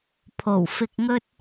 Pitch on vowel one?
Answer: low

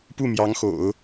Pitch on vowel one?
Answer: falling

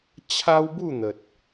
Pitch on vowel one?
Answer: high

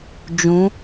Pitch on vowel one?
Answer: rising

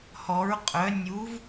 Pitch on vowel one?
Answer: rising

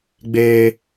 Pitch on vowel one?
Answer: high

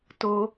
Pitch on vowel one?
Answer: high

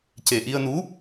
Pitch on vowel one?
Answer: low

